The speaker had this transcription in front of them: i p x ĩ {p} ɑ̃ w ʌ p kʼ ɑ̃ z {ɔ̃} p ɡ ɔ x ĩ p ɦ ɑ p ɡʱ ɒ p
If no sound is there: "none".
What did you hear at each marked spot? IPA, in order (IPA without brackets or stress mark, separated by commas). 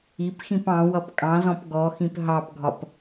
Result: p, ɔ̃